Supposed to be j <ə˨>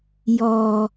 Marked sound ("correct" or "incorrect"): incorrect